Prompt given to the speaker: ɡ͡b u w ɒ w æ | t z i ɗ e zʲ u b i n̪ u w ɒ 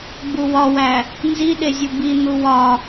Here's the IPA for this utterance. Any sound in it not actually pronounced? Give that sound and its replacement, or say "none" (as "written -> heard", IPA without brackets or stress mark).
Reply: t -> n